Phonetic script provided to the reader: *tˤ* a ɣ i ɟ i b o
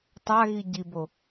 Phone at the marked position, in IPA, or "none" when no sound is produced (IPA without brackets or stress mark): tˤ